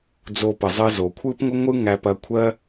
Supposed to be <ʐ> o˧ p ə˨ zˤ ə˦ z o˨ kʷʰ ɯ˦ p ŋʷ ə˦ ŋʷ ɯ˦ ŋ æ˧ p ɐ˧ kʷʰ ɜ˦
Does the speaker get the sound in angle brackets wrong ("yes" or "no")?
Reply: yes